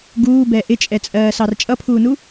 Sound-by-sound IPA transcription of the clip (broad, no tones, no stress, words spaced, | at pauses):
ɡuːbɛ ʔɪt͡ʃʼɛt͡sʼɜːsɑr t͡ʃʼʌpʰuːnu